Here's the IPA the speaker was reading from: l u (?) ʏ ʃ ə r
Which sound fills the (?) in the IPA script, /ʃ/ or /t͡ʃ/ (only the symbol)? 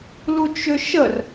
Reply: t͡ʃ